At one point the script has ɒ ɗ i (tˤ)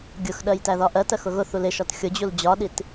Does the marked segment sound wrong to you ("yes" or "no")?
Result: yes